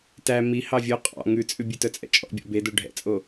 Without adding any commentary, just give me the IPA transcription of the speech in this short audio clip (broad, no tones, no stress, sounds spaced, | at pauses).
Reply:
t æ m i h ɑ vʲ o qʼ ɑ̰ ŋ ʉ t͡sʼ ʉ bʲ ʉ t œ t͡sʼ ɛ̰ t͡ʃʼ ɔ̰ bʲ ɔ̰ b e d o ɖʱ ɛ̰ t͡sʼ o